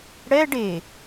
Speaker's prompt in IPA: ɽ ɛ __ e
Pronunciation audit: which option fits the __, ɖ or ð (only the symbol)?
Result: ɖ